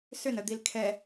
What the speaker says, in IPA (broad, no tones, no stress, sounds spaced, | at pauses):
s ʏ n ə d̪ i l kʰ ɛ